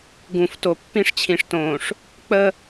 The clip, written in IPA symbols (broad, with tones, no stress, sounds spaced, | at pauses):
ɡ ũ˨ f t o˨ pː ĩ˦ ʂ t͡ɕʰ ĩ˨ ʂ t õː˨ ʂ | k͡p ə˦